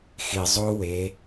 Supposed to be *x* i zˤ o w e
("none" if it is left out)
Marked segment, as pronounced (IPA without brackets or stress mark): x